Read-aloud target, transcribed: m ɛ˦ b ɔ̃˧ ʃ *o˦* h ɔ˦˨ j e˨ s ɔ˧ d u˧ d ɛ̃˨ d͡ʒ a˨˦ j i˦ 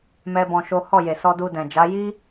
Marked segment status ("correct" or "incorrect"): correct